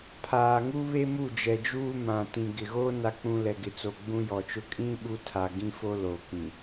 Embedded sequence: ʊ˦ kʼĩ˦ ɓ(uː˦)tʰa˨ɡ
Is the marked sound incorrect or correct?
incorrect